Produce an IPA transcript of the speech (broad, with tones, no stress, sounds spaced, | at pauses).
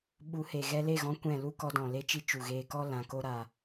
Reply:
ɓ u˨˦ h e˨ ɣ ɛ˧ l e˦˨ ɣ ɔ̃˧ kʷ ɛ̃˦˨ l u˦ k ɔ˧ d ɔ̃˨ l e˦ t͡ʃ i˦ t͡ʃ u˨ ɣ eː˧ k ɔ˦ l ã˧ k o˦ ɾ a˧